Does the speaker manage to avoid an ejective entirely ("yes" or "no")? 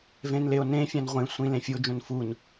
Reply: yes